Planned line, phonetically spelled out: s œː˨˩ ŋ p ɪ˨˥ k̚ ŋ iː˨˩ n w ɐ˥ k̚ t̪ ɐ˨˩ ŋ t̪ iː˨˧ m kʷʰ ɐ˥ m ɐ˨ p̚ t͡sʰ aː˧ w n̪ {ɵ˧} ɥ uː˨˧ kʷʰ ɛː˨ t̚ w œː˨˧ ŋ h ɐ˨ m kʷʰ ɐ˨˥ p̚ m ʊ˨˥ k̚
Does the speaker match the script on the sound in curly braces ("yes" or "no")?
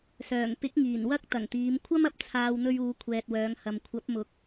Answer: yes